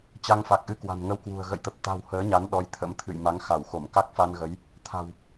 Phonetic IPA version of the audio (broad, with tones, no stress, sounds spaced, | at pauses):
t͡ɕ a˧ ŋ f a˨˩ k̚ ʔ ɨ˧ k w a̤˨˩ n ŋ ə˧ w k w ṳ˨˩ ə̯ ɣ ə̰˧˨ j t̪ ə˨˩ p̚ t̪ a̤˨˩ w h əː˨˦ ɲ a˨˦ n ɗ ɔ˨˦ j t̪ʰ ə̰˧˥ m t̪ʰ ɨ̰˧˨ j m a˨˦ ŋ x a˧˩ w x o˧˩ m k a˦˥ k̚ f a˧ n ɣ ə˨˦ j | t̪ʰ a̤˨˩ w